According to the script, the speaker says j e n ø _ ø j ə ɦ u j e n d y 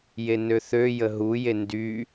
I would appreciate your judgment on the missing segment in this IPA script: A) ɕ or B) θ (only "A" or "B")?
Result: B